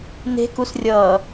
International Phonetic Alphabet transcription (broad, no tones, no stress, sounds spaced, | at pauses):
n e̤ k u s rʲ ʌː